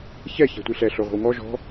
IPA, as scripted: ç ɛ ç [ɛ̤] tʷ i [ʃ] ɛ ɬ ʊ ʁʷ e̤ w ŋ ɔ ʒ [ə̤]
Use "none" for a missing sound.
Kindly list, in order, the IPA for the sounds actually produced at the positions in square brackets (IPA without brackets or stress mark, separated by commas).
ɛ̤, ɬ, ɔ̤